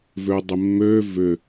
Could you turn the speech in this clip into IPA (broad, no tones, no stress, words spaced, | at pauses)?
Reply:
vødˤɪmːø vʏ